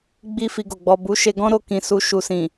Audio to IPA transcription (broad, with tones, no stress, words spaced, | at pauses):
ɡ͡bi˦ fi˧ɡo˨ ɡ͡bɔ˨ bu˨˦ʃe˧ ɡɔ̃˦ɾo˧ kĩ˨su˧ ʃu˨sĩ˨